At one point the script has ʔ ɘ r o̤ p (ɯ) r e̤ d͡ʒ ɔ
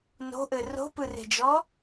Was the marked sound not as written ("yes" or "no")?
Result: no